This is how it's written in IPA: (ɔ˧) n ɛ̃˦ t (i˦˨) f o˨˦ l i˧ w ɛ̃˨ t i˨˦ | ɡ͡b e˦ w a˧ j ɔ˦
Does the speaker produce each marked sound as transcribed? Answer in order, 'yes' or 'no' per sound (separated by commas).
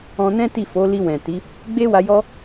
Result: no, yes